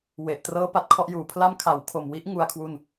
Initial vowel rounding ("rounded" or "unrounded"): unrounded